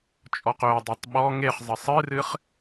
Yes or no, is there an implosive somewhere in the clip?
yes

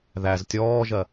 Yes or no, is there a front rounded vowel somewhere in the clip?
no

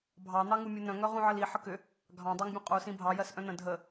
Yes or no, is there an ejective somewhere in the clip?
yes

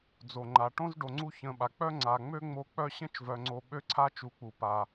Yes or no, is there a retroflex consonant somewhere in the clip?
yes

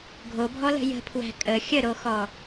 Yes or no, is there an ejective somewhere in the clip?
yes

